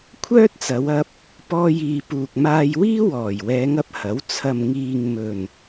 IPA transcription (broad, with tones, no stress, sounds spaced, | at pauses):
kʷʰ œː˥ t̚ t͡s ɐ˨˧ w ɐ˧ p̚ | p ɔː˧ j iː˨ p uː˨ k̚ m aː˧ j w iː˥ w ɔː˨˩ j w ɛː˨˧ ŋ ɐ˨˥ p̚ h ɐ˨˥ w t͡sʰ ɐ˨ m ŋ iː˨ ŋ m ɵ˨˩ n